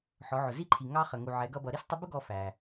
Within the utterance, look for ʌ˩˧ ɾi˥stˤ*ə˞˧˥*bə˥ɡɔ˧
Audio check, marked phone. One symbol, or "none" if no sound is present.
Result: ə˧˥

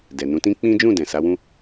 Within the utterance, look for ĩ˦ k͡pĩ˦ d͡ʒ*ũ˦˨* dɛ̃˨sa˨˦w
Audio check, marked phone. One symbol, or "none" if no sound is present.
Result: ũ˦˨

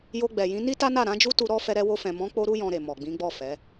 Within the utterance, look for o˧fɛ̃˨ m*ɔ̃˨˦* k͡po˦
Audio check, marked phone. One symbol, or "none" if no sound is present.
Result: ɔ̃˨˦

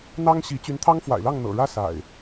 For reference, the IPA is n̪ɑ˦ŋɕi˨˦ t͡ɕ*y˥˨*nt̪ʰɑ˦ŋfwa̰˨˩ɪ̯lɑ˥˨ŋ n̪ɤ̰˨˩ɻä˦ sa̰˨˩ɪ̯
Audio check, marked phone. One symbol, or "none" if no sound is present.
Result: y˨˦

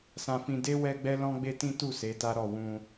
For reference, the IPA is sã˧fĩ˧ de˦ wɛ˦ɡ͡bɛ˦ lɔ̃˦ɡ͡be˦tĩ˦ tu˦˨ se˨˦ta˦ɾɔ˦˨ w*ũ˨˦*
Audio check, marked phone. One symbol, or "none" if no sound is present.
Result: ũ˧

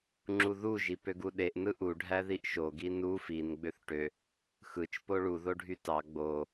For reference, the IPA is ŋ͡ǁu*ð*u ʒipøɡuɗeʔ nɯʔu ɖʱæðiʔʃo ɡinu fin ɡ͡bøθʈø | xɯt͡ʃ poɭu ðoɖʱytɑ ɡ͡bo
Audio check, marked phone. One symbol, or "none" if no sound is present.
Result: ð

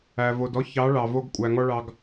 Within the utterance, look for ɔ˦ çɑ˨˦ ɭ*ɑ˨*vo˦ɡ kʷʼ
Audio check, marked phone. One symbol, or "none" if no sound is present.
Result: ɑ˨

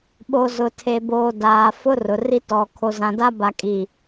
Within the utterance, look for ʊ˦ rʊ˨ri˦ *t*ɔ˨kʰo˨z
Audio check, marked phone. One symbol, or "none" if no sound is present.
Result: t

